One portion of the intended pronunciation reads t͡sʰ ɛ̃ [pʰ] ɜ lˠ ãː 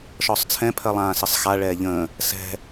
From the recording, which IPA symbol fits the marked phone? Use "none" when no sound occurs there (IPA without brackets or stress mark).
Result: pʰ